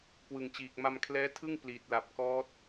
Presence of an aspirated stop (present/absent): present